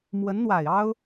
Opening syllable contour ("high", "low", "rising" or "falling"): rising